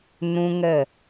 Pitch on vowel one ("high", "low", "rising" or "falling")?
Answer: high